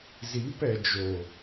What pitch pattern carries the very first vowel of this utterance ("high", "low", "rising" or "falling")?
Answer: rising